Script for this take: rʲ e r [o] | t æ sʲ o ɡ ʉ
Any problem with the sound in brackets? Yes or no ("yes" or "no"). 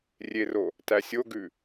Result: no